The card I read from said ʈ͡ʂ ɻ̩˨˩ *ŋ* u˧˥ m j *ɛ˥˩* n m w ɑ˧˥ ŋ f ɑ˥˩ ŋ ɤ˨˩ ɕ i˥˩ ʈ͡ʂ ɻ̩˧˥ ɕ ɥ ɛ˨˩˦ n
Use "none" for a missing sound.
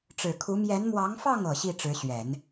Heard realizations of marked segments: kʰ, ɛ˧˥

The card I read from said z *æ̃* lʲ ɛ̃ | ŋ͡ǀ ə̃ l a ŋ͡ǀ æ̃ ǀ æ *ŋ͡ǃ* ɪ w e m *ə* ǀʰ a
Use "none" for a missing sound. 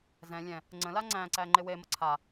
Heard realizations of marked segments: ɛ̃, ŋ͡ǃ, ə

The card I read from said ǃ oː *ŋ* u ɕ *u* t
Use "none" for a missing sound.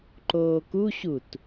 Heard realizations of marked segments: k, u

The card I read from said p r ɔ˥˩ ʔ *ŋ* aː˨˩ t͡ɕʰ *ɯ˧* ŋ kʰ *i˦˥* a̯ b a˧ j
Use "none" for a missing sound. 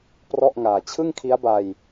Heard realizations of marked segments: ŋ, ɯ˥˩, i˦˥

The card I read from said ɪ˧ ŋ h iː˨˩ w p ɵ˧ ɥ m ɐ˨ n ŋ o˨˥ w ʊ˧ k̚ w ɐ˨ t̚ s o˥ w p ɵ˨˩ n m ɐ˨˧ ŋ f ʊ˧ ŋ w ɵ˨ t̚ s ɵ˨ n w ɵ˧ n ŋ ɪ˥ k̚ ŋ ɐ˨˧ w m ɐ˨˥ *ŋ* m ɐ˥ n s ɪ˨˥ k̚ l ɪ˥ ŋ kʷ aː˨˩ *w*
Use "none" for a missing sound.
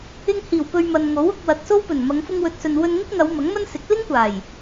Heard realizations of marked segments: ŋ, j

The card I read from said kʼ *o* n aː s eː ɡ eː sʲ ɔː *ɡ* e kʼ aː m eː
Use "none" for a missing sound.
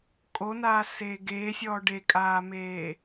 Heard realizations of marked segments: o, ɖ

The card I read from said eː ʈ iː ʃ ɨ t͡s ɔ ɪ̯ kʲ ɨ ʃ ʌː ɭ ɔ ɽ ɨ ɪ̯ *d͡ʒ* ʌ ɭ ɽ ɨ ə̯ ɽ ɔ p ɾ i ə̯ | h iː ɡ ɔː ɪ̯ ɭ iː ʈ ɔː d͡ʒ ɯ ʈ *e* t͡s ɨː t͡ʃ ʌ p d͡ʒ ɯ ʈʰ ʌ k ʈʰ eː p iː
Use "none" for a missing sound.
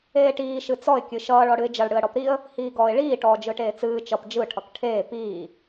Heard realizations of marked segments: d͡ʒ, eː

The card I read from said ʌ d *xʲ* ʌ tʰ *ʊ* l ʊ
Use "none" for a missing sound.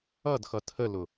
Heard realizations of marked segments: x, ə

